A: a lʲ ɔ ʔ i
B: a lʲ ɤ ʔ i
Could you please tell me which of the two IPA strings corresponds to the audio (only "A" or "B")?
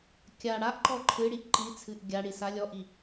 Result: A